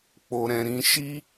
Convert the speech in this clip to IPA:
k͡po˨ɾɛ̃˨ɾĩ˨˦ ʃi˦

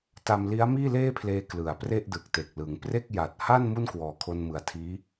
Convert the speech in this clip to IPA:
ta˧mli˦˥a̯miː˥˩ leː˥˩pʰleː˧ klɯ˨˩a̯pre˥˩ʔ dɯ˨˩k̚te˨˩k̚ lɯ˩˦ŋpre˥˩k̚ ja˨˩t̚ ha˥˩n mu˥˩nkwɔː˨˩kʰo˧nmɯ˨˩a̯ tʰiː˦˥

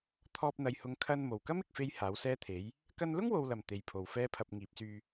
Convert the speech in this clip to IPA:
t̪ʰɔː˧p̚ n̪ɐ˨jhʊ˨˧ŋ kʰɐ˧n mo˨˩wkɐ˥mɪ˨k̚fe˧j haː˨˥wsɛː˥t̪ʰe˨˥j | kɐ˧nlʊ˥ŋwo˨wlɐ˨˩m t̪e˨˧jpʰo˨w fɛː˥pʰɐ˧p̚ ŋiː˨˥p̚syː˧

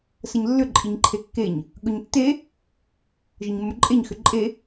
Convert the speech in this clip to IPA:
səɲlːʏ ǃʼiɲǃʰekːeɲ | ɠɵɲtːe | ʒəɲmːɵǃʼeɲ xʏǃʼe

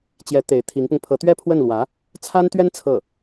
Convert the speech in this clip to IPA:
t͡ɕjɛ˧˥ t̪e˧˥ɪ̯ t̪ʰi˧˥ŋpʊ˧ŋ pʰɤ˧˥t̪ɥɛ˥pʰwə˥˩nlwä˧˥ | t͡sʰa˥nt̪ɥɛ˥n t͡sʰɤ˥˩

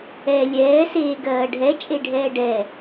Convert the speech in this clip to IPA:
ɛ lʲɛːseː ɡɜːɖʱɛ t͡ʃʼeɖʱɛːɖɛ

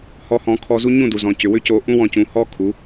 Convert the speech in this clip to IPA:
hɔ˧hɔ̃˩˥ kʰɔ˧zu˥ ɲũ˥˩du˩ zɔ̃˩cʏ˩wʏ˥ co˧ʔũ˥wɔ̃˧cũ˩˥ hɔ˥kʰu˩˥

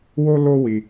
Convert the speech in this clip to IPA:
wo˦lo˦wi˧

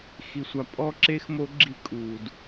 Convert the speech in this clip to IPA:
xi˩sʷa˩ pʼɔ˦˥ǁe˦˥x mo˦˥ɡ͡ǁi˦˥kʼuː˩d

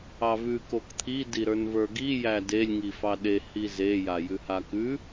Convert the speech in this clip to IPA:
ɑvʉ kokt̪ʰi diɾə˞nvə˞ɡi jædelʲ ŋifɑɗe hize jajʉhakʉ

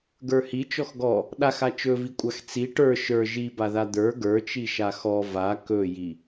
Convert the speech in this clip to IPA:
ɡə˞hi t͡ʃɔxɡɔ | ɗaxa t͡ʃɵvikʷʼax t͡si ʈə˞ ʃə˞ ʒibaða d̪ə˞ ɡə˞t͡ʃiʃa xɔ va kɵji

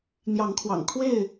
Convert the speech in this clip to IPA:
n̪jɑ˨˦ŋkʰwɑ̰˨˩ŋ kʰwe˥˨ɪ̯

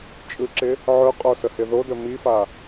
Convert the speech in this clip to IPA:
t͡ʃʼɯǁɪ | ʕɵqʼo səhɪðodɵ mifa

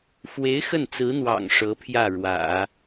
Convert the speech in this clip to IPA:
fwe˧˥ɪ̯ xə˥˩nt͡sɹ̩˧˥n̪wɑ̰˨˩ŋ ʂɤ˧˥pʰjä˥˩ɻwä̰˨˩˦

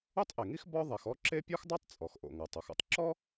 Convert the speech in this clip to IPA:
u˥tˤʔe˩ŋi˥x bɔ˥ ðˤɛ˩xɔ˥ǁe˥ pʲɔ˥xdˤo˥tˤ t͡sʼɔ˩xʔo̰˩ ŋɤ˩tˤo˩xo̰˥tˤ ǁɔ˥

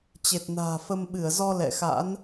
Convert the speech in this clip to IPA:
t͡ɕe˨˩t̚na̤ː˨˩fə˧m ɓɨ˧˩ə̯zɔ˧ lɛ̰˧˨xa̰˧˥n

